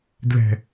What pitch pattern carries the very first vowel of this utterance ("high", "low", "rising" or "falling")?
low